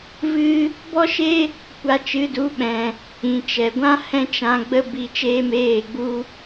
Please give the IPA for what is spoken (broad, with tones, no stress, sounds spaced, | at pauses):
v ɨ˦ | b ɔ˦ ʃ e˦ | kʷ a˧ t͡ʃ ɨ˨˦ d u˨˦ ɓ ɛ̃˨ | ĩ˨ t͡ʃ ɛ˨ ɡʷ ã˦ h ɛ̃˦ t͡ʃ ã˧ ɡ͡b ə˦ b i˧ t͡ʃ eː˦ m eː˦˨ ɡ͡b u˦